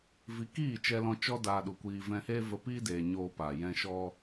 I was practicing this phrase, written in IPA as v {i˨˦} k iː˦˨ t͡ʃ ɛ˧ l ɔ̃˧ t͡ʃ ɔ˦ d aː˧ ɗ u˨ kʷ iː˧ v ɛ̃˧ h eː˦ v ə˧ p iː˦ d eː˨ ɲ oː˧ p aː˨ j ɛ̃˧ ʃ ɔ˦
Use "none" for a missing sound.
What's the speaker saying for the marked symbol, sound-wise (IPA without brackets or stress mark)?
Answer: i˨˦